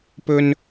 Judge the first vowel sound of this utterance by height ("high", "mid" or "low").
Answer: mid